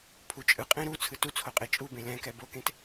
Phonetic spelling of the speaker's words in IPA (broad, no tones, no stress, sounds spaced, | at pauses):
pʰ u t͡ʃʼ ɯ qʼ ẽ ɾ u t͡sʰ ɯ t u t͡sʰ o qʼ e t͡ʃʼ u b ẽ l ɛ̃ k ɛ b o k ẽ t